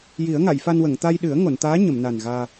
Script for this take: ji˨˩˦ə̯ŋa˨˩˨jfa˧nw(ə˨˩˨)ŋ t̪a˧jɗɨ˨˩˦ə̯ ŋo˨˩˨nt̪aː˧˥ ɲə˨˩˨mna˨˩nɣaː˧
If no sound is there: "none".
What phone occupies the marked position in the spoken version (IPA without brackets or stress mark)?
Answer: ə˨˩˨